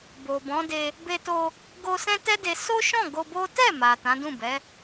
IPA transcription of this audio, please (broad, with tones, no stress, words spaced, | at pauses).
bo˨bɔ̃˨˦de˧ | be˧to˧ | ɡo˧ sɛ̃˦tɛ˦de˧ so˦ʃɔ̃˦˨ ɡo˧bo˦ tɛ˦˨ma˨ tã˨˦dũ˦˨bɛ˨˦